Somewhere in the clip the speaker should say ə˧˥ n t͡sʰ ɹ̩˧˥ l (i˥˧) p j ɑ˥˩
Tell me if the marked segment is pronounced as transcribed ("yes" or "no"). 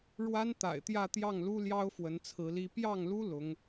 no